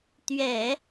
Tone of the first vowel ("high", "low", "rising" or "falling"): low